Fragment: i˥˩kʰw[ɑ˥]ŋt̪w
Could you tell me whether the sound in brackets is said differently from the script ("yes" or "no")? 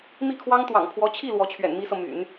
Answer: no